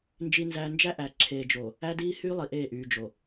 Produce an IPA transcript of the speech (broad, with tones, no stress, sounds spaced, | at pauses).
n d͡ʒ i˦ n z æː˦ n d͡ʒ æ˦ ʔ æ˨ ǁʰ eː˨ d͡ʒ o˨ | æ˦ d iː˦ h yː˦ lˠ i˨ ʔ eː˦˨ ʔ yː˨ d͡ʒ o˨